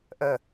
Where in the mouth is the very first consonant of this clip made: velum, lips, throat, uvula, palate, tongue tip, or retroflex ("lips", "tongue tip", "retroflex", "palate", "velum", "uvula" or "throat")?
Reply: throat